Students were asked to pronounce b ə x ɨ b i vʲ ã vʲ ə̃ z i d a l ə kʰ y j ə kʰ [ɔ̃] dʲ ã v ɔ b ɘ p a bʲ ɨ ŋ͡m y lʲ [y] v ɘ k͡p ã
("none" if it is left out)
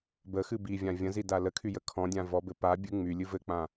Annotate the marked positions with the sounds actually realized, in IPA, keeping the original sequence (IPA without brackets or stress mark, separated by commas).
ɔ̃, ɨ